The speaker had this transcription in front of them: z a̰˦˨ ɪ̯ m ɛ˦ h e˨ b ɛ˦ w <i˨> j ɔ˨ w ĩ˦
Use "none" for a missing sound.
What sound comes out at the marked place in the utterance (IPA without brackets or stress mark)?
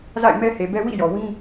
ḭ˦˨